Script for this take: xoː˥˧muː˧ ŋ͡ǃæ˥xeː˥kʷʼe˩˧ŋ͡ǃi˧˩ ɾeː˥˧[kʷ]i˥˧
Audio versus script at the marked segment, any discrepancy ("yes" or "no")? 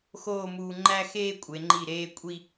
yes